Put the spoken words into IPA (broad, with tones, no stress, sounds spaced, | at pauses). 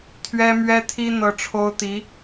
t̪ʰ ɥ ɛ˥ m ɥ ɛ˥ t̪ʰ i˥ n̪ ɤ˥ ʈ͡ʂʰ o˥ ʊ̯ t̪ i˧˥